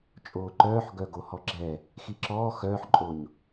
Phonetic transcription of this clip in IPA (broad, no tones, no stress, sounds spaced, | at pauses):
t͡ʃʼ oː ǃ œː ħ ɡ œ ɡ o h ɔ ɡ͡ǁ ɛ | x i ǁ ɔː x œː ħ ǃʼ o ɲ